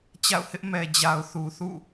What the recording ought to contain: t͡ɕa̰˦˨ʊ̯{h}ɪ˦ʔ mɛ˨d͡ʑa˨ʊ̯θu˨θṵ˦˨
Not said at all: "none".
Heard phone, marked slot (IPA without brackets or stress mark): h